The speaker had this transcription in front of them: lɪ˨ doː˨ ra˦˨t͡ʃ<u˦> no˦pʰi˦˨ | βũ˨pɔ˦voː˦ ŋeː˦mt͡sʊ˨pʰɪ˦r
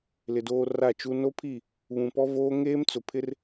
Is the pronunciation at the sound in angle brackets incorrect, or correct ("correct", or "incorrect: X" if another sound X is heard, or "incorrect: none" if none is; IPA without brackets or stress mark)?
correct